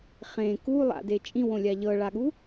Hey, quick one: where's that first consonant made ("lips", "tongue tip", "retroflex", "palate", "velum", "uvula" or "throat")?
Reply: uvula